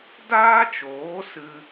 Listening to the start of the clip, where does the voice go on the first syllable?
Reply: high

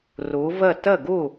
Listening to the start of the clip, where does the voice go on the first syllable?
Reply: rising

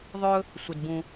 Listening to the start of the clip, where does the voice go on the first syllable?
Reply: high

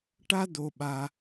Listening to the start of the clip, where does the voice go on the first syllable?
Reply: high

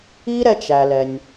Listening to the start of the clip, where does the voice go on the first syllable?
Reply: high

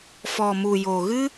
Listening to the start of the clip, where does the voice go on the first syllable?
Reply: low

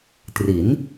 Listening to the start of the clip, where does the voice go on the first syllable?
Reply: rising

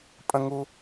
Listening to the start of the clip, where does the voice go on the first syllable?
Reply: high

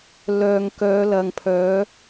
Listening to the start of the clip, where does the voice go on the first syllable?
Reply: low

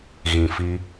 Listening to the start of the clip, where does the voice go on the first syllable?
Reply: low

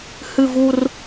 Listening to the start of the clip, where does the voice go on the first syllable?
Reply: falling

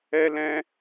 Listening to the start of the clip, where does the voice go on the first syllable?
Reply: high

